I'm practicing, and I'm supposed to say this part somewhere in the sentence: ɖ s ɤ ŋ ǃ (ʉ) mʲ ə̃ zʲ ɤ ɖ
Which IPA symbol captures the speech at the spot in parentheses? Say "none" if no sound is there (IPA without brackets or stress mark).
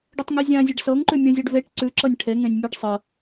ʉ